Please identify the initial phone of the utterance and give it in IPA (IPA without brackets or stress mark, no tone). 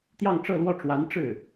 t̪